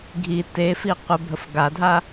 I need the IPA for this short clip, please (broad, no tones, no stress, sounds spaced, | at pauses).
ɡʱ i t e f i qʷ ə bʱ ə f ɡ a dʱ a